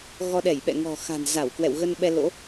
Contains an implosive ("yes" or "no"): yes